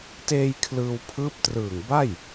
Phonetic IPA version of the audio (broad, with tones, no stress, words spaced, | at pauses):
teː˧j kʰlɯː˧wpʰɯː˦˥p̚trɯː˨˩ŋba˥˩j